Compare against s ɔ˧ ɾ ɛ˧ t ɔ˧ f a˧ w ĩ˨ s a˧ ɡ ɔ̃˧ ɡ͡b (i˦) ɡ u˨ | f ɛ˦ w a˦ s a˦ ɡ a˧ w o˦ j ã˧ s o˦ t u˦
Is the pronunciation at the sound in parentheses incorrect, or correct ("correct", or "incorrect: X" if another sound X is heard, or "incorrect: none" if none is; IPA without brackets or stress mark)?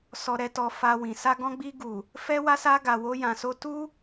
incorrect: i˧